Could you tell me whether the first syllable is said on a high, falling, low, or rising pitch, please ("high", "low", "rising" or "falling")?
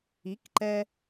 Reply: rising